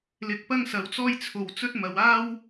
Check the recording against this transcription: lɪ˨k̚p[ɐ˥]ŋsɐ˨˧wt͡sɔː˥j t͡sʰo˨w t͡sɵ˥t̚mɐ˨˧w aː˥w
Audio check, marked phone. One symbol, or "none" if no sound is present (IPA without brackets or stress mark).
ɐ˥